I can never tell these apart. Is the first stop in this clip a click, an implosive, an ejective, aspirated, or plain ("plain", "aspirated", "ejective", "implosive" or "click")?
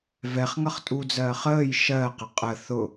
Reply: ejective